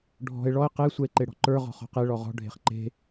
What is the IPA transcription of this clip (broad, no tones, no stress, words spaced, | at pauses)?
ɖʱɔ̤e̯ ɭɔe̯ qe sʷɛe̯ǃeɽɔ̤ǃə˞ ʁɔ̤χɔ̤qe ɭɔʁɔ̤ ɖʱe̤χǃe̤